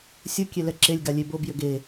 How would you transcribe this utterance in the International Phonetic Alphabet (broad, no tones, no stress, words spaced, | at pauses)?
sʲʊ kʲelɛǁelʲɡa lʲebobjʏ ɡe